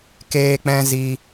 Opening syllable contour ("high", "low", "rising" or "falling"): high